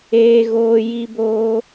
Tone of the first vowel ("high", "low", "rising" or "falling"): high